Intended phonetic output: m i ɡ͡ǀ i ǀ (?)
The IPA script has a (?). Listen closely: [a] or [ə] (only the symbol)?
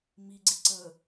ə